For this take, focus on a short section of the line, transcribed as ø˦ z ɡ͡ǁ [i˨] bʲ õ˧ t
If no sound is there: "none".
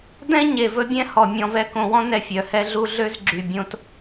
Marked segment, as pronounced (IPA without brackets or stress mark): y˨